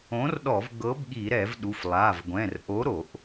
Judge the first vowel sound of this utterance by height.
mid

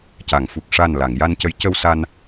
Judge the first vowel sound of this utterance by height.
low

